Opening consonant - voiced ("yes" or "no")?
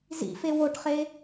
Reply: yes